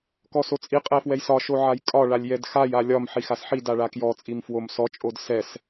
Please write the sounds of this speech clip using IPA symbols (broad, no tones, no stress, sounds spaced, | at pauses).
k ɔ s o t͡sʼ i qʼ ɛ f w ɛ j s ɒ ʃ o ʕ a j kʼ ɒ ɭ a lʲ j ɛ d x a j a lʲ ɒ m ħ i x a s ħ i d a ɭ a k j ɔ t͡sʼ i m f w o m s ɔ t͡ʃʼ o d s ɛ s